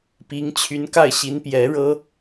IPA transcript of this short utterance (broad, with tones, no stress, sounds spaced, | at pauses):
p i˧˥ ŋ t͡ɕʰ y˧˥ n k a˥˩ ɪ̯ ɕ i˧˥ n p j ɛ˧˥ ɻ ɤ˥